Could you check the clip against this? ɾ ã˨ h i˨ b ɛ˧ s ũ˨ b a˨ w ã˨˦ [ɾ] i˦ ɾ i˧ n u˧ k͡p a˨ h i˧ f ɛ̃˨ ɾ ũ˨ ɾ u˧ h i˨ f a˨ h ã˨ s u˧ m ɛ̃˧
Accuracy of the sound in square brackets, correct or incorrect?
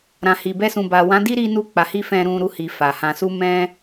incorrect